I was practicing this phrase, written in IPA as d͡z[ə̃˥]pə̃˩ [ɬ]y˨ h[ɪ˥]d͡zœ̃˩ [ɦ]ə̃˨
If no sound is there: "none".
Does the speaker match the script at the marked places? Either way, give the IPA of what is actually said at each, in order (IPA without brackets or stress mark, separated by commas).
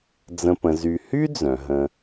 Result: ə̃˨, z, y˥, ɦ